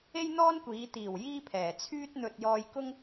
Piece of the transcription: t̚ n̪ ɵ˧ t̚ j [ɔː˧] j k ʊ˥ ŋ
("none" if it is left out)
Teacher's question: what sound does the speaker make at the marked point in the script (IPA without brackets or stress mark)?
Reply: ɔː˧